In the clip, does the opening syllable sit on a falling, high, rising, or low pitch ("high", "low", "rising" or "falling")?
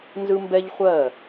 high